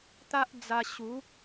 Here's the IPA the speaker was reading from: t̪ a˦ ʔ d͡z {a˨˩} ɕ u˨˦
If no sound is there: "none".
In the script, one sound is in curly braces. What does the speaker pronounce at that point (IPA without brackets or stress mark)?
a˧